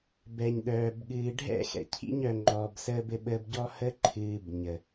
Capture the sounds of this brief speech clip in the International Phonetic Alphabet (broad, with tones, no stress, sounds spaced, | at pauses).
b ɛ˨ ɲ ɗ œː˨ b ɠ ɨː˨ ɖʱ ɛ̰˦˨ x ɛ̰˨ cʰ ḭ˧ ɲ œ˨ ŋ͡ǃ ɔː˨ b s əː˧ b ɘ˧ ɓ əː˧ b ɟ ɔ˧ h ə˧ ǃʰ ɨː˨ b ɲ ə˨